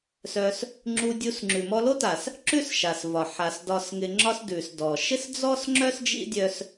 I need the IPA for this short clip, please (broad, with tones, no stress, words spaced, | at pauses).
sœ˧s | ŋ͡ǁu˧dʲu˧s ŋ͡ǁʉ˨mɔ˧lo˦ta˨s | ǁʉ˦sʃa˨svɒ˨ ħa˨s dɒ˧sŋɪ˧ ŋ͡ǁɒ˦sdʉ˨s dɔ˨ ʃɪ˦sd͡zɔ˦sŋ͡ǁœ˦s d͡ʒḭ˦dʲœ˧s